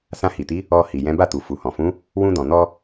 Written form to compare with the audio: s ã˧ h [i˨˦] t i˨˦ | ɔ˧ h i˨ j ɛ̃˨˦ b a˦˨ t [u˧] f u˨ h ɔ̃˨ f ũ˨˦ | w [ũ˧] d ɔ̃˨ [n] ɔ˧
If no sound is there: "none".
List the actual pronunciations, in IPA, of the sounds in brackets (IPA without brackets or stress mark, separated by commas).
i˨, u˨, ũ˧, n